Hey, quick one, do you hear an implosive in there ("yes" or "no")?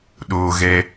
yes